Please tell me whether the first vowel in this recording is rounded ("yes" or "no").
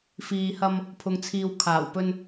no